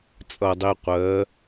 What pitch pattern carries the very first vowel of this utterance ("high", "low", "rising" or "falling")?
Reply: low